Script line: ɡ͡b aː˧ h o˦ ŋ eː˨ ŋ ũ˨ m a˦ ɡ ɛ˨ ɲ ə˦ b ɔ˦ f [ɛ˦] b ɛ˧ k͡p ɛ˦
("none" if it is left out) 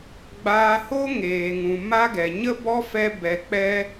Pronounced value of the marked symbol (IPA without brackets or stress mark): ɛ˦